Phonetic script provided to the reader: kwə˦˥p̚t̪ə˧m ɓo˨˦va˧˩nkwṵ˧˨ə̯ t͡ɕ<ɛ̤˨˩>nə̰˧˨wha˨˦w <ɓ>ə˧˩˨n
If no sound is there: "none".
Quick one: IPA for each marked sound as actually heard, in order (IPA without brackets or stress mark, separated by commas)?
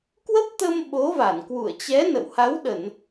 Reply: ɛ˨˦, ɗ